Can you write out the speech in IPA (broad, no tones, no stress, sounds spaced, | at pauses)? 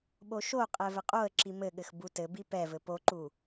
ɓ o ʃ o qʼ ɛ v ɘ qʼ o ə̯ ǁ i m ɘ ɠ ɘ x b u t ɘ b i p ɛ v ɘ p o ǃ u